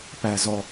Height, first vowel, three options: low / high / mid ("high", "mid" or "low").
low